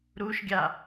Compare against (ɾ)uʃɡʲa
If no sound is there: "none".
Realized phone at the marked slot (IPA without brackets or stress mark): ɾ